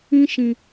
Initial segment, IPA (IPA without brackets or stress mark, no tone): ĩ